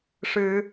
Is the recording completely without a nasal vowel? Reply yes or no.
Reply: yes